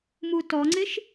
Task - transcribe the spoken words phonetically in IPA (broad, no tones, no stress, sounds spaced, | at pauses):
m u t ɔ ŋ͡ǀ ɪ ʃ